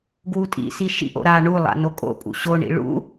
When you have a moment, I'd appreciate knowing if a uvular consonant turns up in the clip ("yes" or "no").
no